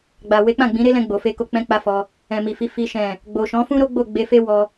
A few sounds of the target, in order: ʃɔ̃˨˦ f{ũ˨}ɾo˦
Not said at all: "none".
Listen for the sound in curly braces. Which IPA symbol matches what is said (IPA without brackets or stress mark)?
ũ˦